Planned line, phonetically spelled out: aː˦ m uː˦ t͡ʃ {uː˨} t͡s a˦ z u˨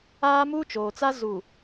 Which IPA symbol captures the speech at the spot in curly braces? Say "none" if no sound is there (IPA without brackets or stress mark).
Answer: oː˨